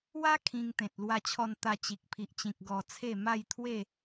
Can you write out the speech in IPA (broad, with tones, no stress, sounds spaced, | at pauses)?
w a˦ kʰ ĩ˧ ŋ t̪ ẽ˨ t̚ l w a˧ t͡ɕʰ ɔ˧ n t̪ a˧ t͡ɕ i˨ k̚ pʰ i˨ ʔ t͡ɕ ĩ˨ k̚ ɡ ɔ˧ t͡sʰ e˥˧ m a˥˧ j t̪ʰ w e˥˧